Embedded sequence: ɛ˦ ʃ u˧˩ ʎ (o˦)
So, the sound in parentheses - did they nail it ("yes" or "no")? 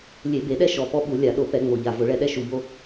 yes